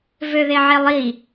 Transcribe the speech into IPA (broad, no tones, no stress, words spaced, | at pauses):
vøðeʕelˠi